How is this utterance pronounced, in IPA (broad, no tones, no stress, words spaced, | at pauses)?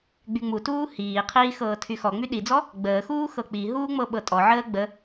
ɡ͡byŋ͡mutuː hiːqʰiː xɤːtʰyxɔŋ͡my ɗid͡zɔ | ɡ͡bəːxuː xɤk͡piɦuː ŋ͡mɤɓɤtʼɔʕəː ɡ͡bə